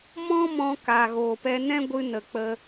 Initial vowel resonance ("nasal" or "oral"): nasal